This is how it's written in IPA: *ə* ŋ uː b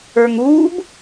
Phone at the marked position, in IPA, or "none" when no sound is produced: ə˞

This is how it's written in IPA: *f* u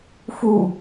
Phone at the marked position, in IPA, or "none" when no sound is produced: f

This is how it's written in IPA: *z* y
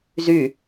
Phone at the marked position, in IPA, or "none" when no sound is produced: z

